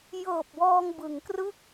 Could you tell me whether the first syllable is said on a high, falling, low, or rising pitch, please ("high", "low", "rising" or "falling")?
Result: low